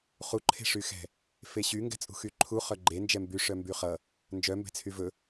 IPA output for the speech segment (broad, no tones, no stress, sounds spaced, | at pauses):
χ u ǃʰ e̤ ʂ y x ɛ̤ | f e ɕ y ŋ ɡ ɛ̤ t͡sʼ ṳ x y ǃʰ u χ œ ɡ͡ǃ e n d͡ʒ ɛ m b y ʂ œ m b y χ ʌ | n d͡ʒ œ m b ɛ̤ t͡sʰ y v ɵ